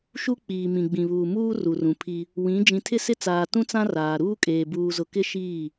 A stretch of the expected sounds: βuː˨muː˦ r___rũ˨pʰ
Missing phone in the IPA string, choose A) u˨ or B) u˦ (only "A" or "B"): A